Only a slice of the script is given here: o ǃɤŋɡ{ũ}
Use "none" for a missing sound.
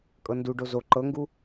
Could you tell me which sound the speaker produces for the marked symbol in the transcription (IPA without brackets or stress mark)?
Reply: u